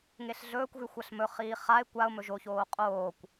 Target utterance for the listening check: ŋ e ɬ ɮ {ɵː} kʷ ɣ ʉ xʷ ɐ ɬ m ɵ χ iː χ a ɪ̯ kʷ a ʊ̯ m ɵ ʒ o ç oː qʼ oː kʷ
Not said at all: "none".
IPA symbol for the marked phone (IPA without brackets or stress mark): ɵː